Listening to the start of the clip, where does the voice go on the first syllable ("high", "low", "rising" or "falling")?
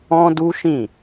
high